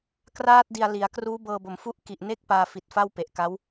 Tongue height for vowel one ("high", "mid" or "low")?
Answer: low